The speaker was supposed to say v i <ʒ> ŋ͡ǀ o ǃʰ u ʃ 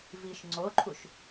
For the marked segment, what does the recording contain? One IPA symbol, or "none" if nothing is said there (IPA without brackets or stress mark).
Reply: ʃ